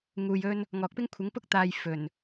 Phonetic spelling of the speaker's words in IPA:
ŋ uː˧ j ɵ˥ n | ŋ ɔː˨ k̚ p ɪ˥ ŋ kʷʰ ɪ˨˥ ŋ p ʊ˥ k̚ t̪ aː˧ j f ɵ˨˩ n

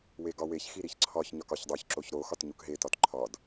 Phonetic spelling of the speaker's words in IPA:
w e ɡ ɒ w e ç x i ɾ i ç ǀʰ ɒ ç ɲ ɒ k ɒ ç dˤ o ç ǁ o ç ɾ o x ɒ t ɲ u k ɦ e t ɒ t ǃʰ ɒ d

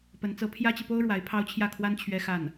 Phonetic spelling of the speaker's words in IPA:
p ə˧˥ n t͡s ɤ˧˥ pʰ j ä˥ t͡ɕ i˨ p o˥ ʊ̯ ɻ w a˧˥ ɪ̯ pʰ ɑ˥ ʊ̯ t͡ɕʰ j ä˥˩ kʰ w a˥ n t͡ɕʰ ɥ ɛ˥ x a˥˩ n

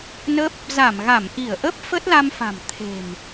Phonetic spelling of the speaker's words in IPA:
n ə˦˥ p̚ | z a˧˩ m ɣ a˧˩ m ʔ i˧˩ ə̯ ʔ əː˦˥ p̚ f ə˦˥ t̚ l a˧ m f a̤˨˩ m t̪ʰ e̤˨˩ m

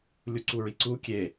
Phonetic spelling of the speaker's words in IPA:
lʲ u ǀ u ɹ i ǀ u kʲ e

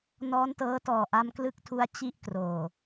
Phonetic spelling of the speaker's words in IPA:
n ɔː˦˥ n t ɤː˦˥ t ɔː˨˩ ʔ a˧ m k l ɯ˦˥ k̚ tʰ u˧ a̯ t͡ɕ i˥˩ ʔ k r oː˨˩

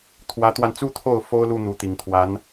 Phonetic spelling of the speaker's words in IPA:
t̪ʰ w ä˧˥ t̪ w a˧ n t͡s u˥ t̪ʰ o˥˩ ʊ̯ f o˥ ʊ̯ l u˥˩ n̪ u˧˥ t̪ i˨˩ ŋ t̪ʰ w a˧˥ n

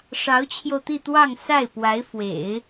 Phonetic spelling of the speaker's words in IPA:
ʂ ɑ˧˥ ʊ̯ t͡ɕʰ j o˧ ʊ̯ t̪ i˥˧ t̪ w ɑ˥˧ ŋ s a˥˩ ɪ̯ p w a˧˥ ɪ̯ f w ḛ˨˩˦ ɪ̯

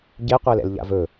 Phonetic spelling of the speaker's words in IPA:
ɟ e qʷ ɛ l ɛ̰ l ʎ a̰ v ɵ

